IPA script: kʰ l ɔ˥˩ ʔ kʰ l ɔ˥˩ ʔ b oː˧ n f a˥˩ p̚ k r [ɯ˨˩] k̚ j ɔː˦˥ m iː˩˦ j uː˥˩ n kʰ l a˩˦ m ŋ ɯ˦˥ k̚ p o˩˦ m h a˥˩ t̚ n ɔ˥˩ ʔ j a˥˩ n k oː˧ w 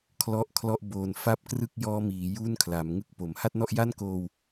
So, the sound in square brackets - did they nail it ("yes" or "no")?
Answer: no